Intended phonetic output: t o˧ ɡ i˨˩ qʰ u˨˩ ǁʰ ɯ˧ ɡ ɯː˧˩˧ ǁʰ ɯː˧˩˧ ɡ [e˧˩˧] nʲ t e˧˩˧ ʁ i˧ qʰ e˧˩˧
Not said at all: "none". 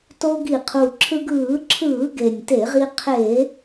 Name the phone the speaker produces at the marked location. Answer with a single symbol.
e˨˩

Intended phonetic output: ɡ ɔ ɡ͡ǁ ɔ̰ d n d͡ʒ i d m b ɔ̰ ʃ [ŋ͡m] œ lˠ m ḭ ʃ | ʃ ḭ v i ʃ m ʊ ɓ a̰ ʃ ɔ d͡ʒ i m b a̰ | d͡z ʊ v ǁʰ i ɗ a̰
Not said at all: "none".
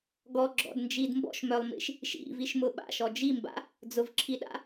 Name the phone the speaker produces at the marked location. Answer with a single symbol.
m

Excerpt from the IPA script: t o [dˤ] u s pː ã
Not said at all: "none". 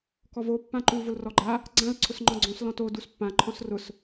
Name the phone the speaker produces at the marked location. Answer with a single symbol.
d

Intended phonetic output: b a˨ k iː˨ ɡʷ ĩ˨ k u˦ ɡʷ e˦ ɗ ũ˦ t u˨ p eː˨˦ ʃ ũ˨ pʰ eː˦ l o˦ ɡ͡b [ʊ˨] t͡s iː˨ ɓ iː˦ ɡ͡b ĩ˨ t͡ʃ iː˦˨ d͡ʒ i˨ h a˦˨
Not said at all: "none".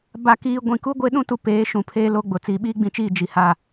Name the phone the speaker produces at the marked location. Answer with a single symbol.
ʊ˨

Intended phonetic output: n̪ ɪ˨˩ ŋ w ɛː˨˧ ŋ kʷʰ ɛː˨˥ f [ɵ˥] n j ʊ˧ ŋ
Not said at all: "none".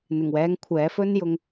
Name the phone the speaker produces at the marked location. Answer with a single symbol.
ɵ˥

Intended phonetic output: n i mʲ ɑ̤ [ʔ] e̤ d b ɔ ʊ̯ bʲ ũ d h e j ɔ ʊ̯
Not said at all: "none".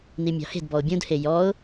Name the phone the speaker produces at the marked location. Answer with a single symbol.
h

